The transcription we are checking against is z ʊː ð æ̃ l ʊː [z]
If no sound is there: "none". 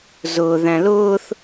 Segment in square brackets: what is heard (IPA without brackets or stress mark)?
θ